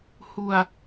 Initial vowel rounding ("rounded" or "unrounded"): rounded